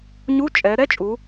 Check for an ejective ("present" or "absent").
present